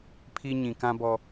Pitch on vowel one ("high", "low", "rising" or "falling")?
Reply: high